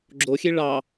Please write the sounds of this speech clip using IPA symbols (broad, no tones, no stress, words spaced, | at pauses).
ɡ͡ǁoxʲe ɭɑ